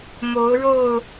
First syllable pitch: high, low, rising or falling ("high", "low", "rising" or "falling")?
rising